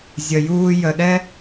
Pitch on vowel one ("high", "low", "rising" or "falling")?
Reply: low